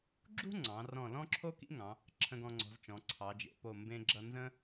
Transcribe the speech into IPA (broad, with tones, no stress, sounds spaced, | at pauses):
ɡ͡ǁ ṳ˥ ŋ͡ǀ ɑ̃˩˧ r ɔ̃˧˩ l ɔ̃˥ ǁʰ o˥ k ḭ˥ ŋ ɑ̃˩˧ | ǁʰ ə̃˧ ɡ ɔ̃˧ ŋ͡ǀ ɔ̤˩˧ z t͡ʃ ɔ̃˩˧ ǀʰ ɑ˩˧ d͡ʒ ḛ˩˧ p o˧˩ m b ẽ˧ ɡ͡ǁ ʌ˧ n z ə̃˥